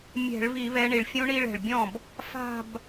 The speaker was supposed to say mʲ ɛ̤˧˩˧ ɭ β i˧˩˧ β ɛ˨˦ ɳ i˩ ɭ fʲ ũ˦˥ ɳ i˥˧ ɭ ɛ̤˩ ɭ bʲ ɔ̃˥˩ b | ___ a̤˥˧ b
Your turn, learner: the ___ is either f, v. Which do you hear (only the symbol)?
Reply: f